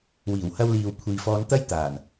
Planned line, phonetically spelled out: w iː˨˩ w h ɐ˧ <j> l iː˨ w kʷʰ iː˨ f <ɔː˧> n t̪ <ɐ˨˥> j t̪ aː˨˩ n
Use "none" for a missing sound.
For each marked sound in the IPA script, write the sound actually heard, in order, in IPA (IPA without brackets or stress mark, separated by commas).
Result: w, ɔː˧, ɐ˥